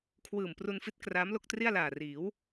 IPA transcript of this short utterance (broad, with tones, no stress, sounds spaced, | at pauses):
kʰ w ɯː˨˩ m p r u˧ n f i˦˥ t̚ k r aː˦˥ m l o˥˩ k̚ t r i˥˩ a̯ l aː˨˩ r iː˩˦ w